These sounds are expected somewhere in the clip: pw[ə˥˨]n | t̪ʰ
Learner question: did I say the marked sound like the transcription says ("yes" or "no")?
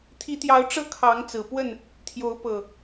yes